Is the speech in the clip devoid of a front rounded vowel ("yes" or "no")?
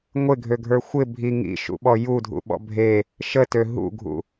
no